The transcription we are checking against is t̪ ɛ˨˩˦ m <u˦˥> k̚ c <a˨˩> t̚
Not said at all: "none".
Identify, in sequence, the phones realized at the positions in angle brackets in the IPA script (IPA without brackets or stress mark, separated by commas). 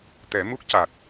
u˦˥, a˨˩